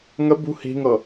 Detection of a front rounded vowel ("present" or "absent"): absent